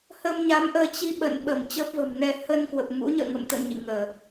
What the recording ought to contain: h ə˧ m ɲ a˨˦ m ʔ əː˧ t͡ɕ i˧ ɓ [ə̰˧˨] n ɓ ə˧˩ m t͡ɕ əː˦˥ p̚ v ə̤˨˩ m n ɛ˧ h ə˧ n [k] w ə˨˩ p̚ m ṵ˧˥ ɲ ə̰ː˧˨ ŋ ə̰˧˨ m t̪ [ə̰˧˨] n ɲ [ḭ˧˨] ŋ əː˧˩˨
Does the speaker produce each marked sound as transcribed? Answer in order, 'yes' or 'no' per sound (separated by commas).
yes, yes, yes, yes